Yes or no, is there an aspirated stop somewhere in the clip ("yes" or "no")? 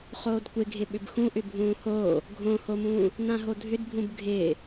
no